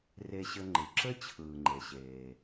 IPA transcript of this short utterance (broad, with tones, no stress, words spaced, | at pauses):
re˧ɕɘ˧ŋ͡ǃɨ˩ǁɘ˥ t͡ɕʰɯː˩ŋ͡ǃe˩ɕeː˩